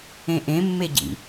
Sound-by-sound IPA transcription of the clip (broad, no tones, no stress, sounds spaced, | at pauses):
ẽ ʔ ẽ mː e ɟ ḭ